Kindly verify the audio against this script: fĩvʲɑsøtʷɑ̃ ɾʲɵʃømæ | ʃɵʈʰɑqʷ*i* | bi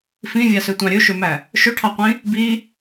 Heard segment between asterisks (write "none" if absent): ĩ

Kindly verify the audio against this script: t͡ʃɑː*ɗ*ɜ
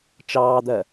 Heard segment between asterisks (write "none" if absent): d̪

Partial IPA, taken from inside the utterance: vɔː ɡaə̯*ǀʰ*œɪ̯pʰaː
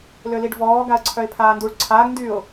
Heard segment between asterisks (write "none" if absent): ǀʰ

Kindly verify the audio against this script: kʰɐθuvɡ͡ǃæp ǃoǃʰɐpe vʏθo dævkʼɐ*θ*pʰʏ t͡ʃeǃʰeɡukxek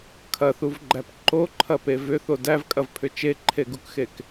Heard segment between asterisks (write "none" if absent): v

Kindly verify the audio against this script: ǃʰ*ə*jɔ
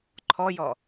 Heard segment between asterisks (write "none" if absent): ɔ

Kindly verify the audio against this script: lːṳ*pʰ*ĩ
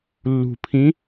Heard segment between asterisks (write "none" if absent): pʰ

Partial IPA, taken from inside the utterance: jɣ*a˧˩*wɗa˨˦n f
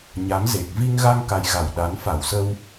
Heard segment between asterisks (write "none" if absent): a˧˩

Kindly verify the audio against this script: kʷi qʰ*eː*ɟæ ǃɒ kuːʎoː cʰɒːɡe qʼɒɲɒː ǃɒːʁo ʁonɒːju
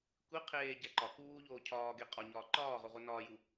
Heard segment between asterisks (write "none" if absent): eː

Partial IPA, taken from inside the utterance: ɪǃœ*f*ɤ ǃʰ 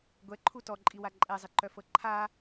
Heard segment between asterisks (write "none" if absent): f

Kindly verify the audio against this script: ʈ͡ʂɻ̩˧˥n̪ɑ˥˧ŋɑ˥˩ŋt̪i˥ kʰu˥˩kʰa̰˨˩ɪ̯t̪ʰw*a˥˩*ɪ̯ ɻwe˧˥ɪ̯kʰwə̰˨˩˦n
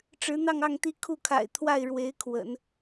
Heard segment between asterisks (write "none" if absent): a˥˩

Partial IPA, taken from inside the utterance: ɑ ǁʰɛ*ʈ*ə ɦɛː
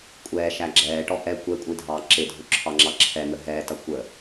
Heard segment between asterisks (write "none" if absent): n̪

